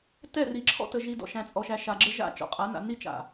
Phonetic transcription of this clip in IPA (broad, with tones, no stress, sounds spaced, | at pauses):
t ɛ˦˨ r i˨ ǁʰ ɔ̰˦ t ə˨ ʒ i˨ d ɔ̰˨ ʃ æ̃˨ t͡sʼ ɔ˨ ʃ æ˨ ʃ a˨ ɡ͡ǁ ə˦ ʒ a̰˦˨ t͡ʃ ɔ̰˨ qʼ a˨˦ n a̰˨ n i˦ t͡ʃ a̰˨